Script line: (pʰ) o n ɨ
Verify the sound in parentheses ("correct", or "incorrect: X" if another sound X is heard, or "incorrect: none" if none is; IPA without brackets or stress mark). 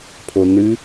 correct